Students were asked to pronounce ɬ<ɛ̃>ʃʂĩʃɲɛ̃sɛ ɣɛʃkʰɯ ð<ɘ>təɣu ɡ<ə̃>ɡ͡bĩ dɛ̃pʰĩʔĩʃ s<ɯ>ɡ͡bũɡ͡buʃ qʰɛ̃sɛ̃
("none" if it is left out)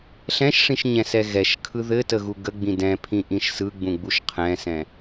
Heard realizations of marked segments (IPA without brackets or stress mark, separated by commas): ɛ̃, ɘ, ə, ɯ